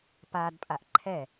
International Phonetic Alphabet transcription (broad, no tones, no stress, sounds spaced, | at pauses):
p a d pʼ a ʔ ǃʰ ɛ